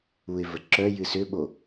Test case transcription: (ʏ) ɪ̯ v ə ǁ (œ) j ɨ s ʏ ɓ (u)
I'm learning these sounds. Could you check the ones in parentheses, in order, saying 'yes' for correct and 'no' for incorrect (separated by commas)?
no, yes, no